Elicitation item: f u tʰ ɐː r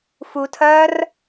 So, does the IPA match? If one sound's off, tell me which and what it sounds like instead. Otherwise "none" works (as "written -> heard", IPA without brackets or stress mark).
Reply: none